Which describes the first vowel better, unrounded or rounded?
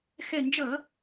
unrounded